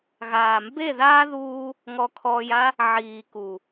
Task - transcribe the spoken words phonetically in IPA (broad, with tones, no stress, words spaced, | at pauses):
ɣaː˨mbe˦˨ðaː˦ ðuː˧ | ŋɔ˧kʰɔː˧ja˦ | ʕiː˨ku˨